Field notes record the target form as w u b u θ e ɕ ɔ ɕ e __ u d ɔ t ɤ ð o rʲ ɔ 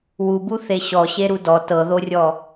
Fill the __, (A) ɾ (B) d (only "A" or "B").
A